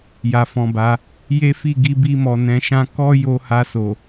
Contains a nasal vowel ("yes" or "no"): yes